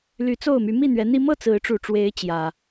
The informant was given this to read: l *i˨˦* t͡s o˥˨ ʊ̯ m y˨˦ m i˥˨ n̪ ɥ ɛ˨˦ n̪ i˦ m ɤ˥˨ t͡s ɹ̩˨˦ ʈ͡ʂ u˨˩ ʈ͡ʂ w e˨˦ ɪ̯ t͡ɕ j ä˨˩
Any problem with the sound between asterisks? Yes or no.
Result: yes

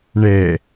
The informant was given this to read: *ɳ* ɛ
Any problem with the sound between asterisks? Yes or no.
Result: no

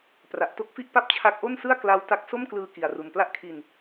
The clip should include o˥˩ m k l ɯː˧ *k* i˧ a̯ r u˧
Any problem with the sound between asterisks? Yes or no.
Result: no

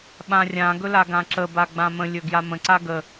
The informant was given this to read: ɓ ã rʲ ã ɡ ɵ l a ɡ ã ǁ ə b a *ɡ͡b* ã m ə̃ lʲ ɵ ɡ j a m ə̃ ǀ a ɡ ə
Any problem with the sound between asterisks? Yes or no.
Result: no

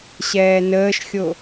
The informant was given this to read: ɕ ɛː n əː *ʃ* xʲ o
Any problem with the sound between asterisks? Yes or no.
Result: no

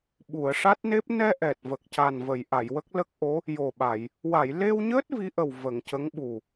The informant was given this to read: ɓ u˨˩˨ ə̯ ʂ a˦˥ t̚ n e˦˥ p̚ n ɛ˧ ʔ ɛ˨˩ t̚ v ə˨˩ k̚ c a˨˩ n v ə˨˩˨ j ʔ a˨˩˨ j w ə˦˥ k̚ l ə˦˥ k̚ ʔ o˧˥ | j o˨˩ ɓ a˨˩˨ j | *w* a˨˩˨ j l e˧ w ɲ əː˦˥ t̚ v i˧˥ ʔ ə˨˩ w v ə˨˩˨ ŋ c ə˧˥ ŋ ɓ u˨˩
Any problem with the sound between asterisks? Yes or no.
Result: no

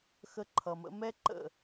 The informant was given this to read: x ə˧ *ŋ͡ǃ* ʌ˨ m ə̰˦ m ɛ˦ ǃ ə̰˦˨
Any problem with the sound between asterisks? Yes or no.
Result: yes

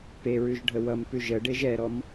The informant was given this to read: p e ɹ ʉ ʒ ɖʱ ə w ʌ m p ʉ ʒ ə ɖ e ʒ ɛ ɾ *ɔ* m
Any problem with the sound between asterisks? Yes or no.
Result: no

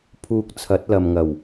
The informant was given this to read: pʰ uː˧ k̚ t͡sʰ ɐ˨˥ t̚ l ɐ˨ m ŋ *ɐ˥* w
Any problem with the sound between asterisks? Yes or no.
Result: yes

